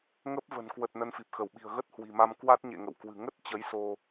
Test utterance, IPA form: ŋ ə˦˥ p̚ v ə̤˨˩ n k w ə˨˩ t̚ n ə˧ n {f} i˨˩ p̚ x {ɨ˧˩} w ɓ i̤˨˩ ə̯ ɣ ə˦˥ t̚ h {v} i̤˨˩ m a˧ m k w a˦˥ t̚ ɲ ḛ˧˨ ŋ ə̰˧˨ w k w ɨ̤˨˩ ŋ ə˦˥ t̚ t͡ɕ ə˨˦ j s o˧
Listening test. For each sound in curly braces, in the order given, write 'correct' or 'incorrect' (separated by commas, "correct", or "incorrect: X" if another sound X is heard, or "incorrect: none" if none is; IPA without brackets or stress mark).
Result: correct, incorrect: ə˧˩, incorrect: w